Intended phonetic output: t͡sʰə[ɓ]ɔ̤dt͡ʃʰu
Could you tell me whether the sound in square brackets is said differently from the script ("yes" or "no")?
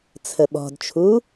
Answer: no